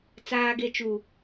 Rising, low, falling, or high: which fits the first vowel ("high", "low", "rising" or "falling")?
high